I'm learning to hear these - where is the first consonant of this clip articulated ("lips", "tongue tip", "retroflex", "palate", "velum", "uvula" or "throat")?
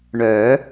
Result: retroflex